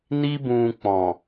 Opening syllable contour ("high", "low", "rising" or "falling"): high